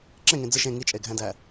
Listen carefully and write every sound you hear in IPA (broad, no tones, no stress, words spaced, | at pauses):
ǁẽŋẽ d͡zɯʃ ẽ ŋit͡ʃʼeɡʱæ̃dæ